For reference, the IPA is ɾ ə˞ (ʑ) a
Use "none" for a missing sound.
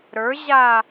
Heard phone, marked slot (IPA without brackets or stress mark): ʑ